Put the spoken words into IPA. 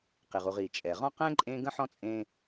qi˩ʁu˨ʁi˩t͡ʃʼɛ˩ ʁɔ̃˥qɛ̃˥ ǃʼẽ˥ ɡə̃˥ħɔ̃˥t͡sʼẽ˦

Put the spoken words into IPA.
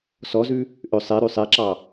sɔzʉ | ʔø sˤeɾʉ sˤeǁɑ

